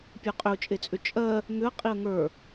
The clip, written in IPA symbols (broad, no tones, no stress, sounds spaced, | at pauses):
pʲ ə˞ qʼ ʏ ʊ̯ t͡ʃʼ e t͡sʼ ʏ t͡ʃʼ ɜ | ŋ ʏ ə̯ qʼ i ə̯ ŋ ə˞